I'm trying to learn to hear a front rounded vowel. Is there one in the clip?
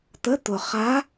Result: no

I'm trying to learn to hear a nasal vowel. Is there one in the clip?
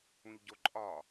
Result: yes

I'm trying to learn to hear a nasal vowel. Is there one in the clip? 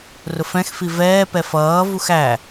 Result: yes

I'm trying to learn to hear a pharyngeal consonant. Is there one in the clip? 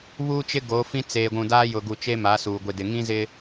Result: no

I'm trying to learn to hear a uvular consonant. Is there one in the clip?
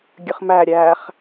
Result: yes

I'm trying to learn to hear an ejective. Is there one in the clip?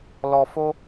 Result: no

